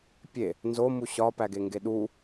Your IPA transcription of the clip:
pʲe | nzomu ɕɒpæɡeŋɡe ɗu

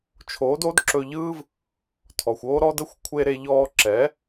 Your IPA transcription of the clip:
t͡ʃʰoː˨˦do˨˦d ǁɵ˧ʎɯː˦v | tʰɔ˨xʷo˦ɾɔ˦də˦xʷ kʷʰe˧ɾe˧ʎɔː˧ǁɛ˨˦

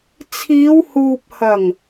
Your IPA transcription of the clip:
t͡sʰiː˨˧whuː˨p̚ hɐ˨˩ŋ

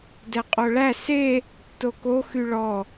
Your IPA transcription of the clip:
dɛqʼoɭæ se | toko xyɭɔ

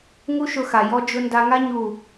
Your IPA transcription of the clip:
ŋu˦ʃʊ˧xa˨ jɔ˦d͡ʒʊ˦ nda˧ŋa˦ ɲu˦˨

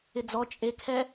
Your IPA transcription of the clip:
ɪd͡zɔ t͡ʃʼekʰɛ

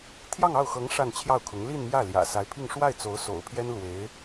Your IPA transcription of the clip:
t̪ʰjɑ˥˧ŋɑ˥˩ʊ̯xɤ˧˥ŋ ʂa˥˧nt͡ɕʰjɑ˥˩ʊ̯kʰʊ˧˥ŋ li˥˧nmjä˥˩ ljä̰˨˩sa˧˥ɪ̯pʰi˥˧ŋ ʂwa˥˩ɪ̯t͡so˧˥ʊ̯ so̰˨˩ʊ̯pʰjɛ˥n lwe˧˥ɪ̯

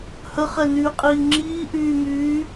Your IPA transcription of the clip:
həχɛnyːqʼiː ŋ͡ǁiːʔyːmyː

